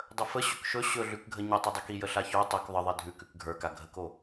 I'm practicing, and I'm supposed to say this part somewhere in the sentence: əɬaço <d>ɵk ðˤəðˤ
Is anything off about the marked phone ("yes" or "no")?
yes